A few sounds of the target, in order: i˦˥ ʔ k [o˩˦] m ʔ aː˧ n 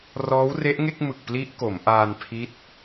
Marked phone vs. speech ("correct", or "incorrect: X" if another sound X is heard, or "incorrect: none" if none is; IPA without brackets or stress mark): correct